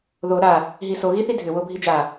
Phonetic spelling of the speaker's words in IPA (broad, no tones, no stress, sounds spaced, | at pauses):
ð o ɾ a | ɦ i s o ɣ i θ i dʱ ʏ w o bʱ i d͡ʒ a